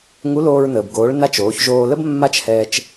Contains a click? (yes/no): no